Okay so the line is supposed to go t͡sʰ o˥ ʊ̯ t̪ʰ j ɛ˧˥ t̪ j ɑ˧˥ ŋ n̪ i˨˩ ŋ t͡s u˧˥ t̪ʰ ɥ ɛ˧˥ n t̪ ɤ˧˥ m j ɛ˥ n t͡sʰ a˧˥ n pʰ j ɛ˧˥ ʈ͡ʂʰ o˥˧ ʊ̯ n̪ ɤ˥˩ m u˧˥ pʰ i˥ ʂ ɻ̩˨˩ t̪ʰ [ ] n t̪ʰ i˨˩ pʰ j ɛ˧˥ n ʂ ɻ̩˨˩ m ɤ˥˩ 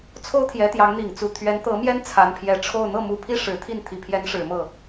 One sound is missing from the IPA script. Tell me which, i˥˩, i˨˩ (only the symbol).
i˥˩